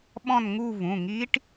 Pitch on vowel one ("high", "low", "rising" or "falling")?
falling